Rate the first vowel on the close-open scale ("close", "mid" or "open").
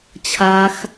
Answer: open